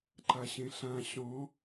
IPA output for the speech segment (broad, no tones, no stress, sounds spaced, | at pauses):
ǃ a ɕ ẽ ɬ ã ɕ ɔ̃